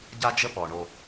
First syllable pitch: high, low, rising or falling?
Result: high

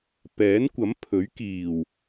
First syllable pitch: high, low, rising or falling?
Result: rising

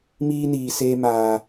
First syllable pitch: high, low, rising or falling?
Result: high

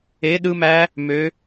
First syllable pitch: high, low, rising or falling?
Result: rising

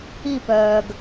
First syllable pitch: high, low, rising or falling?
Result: falling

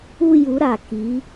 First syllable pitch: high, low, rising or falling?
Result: falling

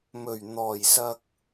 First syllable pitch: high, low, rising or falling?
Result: low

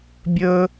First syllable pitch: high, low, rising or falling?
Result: high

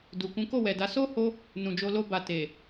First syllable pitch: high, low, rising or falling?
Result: low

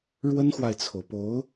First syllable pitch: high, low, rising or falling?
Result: high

